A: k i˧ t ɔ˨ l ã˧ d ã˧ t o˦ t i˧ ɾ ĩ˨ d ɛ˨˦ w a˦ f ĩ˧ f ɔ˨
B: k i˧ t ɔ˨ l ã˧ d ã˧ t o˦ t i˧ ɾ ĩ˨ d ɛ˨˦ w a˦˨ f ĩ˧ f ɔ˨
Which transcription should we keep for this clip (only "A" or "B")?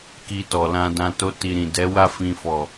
B